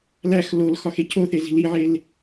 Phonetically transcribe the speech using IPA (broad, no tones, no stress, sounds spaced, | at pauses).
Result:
l æ x l o l x ɒ x e cʰ o θ e z i̤ l i ʕ e l